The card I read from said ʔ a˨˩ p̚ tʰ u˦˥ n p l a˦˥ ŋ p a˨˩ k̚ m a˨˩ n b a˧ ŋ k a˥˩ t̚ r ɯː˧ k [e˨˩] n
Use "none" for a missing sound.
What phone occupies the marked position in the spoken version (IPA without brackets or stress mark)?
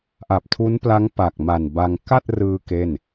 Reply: e˥˩